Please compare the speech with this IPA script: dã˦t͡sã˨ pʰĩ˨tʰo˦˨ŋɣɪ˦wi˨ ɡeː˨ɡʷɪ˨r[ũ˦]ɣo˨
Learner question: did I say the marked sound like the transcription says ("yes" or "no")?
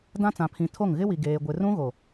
yes